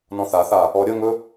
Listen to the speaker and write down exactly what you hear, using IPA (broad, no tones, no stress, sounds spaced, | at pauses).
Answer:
n ɔ̃ θ a θ a | ɔ ɾʲ ə ŋ ɵ